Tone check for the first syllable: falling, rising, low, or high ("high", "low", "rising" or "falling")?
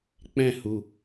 falling